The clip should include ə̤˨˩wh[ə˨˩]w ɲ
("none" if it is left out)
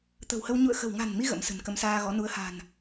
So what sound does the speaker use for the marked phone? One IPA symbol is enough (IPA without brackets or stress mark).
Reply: ə˧